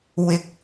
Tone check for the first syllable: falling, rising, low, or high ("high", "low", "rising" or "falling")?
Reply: low